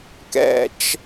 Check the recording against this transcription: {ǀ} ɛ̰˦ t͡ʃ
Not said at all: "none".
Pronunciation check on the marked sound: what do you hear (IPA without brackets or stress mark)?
k